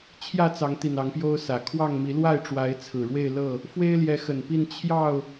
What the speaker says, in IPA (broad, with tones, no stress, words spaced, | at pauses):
t͡ɕʰjä˥˨ t͡sɑ˨˦ŋt̪i˨˩n ɑ˨˦ŋpjo˦ʊ̯sä˨˩ kʰwɑ˥˨ŋmi˨˦ lwa˥˨ɪ̯ʈ͡ʂwa˨˦ɪ̯t͡sʰɹ̩˨˩ ɻwe˥˨ɪ̯ lɤ˥˨ | fwe˦ɪ̯ljɛ˨˦xə˨˩npi˥˨n t͡ɕʰjɑ˥˨ʊ̯